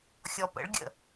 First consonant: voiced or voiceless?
voiceless